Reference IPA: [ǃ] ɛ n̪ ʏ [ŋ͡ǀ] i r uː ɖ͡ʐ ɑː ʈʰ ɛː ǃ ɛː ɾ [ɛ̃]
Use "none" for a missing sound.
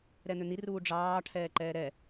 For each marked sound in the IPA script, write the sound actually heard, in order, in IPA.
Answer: ɾ, n̪, ɛ

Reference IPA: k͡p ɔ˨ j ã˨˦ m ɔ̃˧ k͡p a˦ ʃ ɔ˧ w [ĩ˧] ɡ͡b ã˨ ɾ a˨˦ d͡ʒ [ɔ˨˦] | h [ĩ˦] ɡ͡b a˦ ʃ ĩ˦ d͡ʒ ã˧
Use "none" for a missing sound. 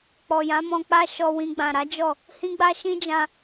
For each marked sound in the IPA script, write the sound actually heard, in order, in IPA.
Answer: ĩ˧, ɔ˦˨, ĩ˦

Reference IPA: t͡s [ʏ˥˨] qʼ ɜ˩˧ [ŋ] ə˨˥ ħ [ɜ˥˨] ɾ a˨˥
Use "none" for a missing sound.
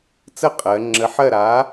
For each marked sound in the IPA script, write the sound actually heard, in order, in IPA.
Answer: ə˥˨, ŋ͡ǁ, ɜ˥˨

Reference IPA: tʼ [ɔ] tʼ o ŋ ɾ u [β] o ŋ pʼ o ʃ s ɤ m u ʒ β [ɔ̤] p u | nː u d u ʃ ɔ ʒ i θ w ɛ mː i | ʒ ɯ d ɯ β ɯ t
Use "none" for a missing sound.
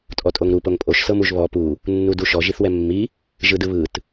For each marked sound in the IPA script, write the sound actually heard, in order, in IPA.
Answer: ɔ, p, ɔ

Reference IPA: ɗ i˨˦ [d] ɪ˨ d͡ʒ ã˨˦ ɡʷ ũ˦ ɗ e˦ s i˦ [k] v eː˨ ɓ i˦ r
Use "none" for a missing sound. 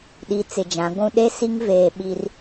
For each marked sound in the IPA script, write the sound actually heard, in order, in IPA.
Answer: t͡s, ŋ

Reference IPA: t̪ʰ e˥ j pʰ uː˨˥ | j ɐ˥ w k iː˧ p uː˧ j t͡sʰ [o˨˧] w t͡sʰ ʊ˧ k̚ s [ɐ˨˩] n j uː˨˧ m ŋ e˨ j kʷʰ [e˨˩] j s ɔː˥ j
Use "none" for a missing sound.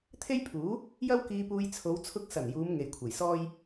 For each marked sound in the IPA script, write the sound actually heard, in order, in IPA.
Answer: o˨˧, ɐ˨˩, e˨˩

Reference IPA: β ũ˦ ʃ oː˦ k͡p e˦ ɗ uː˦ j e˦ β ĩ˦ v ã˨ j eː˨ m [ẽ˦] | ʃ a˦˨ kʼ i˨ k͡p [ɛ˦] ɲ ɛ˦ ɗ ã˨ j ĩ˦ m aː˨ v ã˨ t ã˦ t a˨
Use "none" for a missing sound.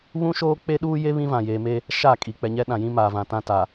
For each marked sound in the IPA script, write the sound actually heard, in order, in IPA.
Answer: e˦, ɛ˨

